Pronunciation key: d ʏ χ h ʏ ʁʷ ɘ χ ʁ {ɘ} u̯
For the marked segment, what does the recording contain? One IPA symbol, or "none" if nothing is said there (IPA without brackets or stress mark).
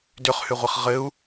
ɘ